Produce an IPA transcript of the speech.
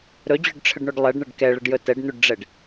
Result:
ɾ ɵ d͡ʑ ɵ ɖ ʈ͡ʂʰ ə ɖ ɳ o ɖ lˠ ɛ ɖ ɳ ə ɖ k ɛ ɭ ə ɖ j ɵ t ɛ ɖ n̪ u ɖ ɖ͡ʐ ɛ ɖ

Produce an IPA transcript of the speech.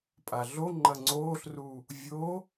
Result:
pʼ a ɮ o ŋ͡ǃ ɐ ŋ͡ǀ oː ɬ r u | vʲ o

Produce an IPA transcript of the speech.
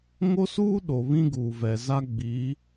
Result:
ŋ o˦ s uː˦ ɗ o˨ β ĩ˦ ɡ uː˨ v ɛ˨ z a˦ ɡ͡b iː˨˦

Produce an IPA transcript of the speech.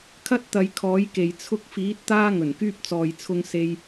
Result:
kʰ ɐ˥ t̚ t̪ ɐ˨˧ j kʰ ɔː˨˥ j k e˨ j t͡sʰ ʊ˧ k̚ f iː˨˥ t̚ t̪ aː˥ ŋ ɵ˨˩ n k yː˧ p̚ t͡s ɔː˨ j t͡sʰ ʊ˧ ŋ s e˧ j

